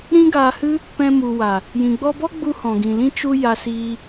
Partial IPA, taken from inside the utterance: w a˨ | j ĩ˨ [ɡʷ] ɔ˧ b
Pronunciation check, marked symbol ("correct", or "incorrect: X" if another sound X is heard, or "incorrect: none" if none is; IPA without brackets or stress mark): incorrect: ɡ͡b